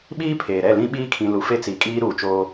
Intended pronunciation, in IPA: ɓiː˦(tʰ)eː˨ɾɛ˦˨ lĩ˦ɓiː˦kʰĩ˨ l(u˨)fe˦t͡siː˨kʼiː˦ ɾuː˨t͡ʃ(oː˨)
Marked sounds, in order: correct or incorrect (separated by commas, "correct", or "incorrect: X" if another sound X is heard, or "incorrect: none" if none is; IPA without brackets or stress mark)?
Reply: incorrect: pʰ, correct, incorrect: oː˦